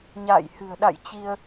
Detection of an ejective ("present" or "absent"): absent